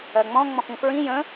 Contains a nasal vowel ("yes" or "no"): yes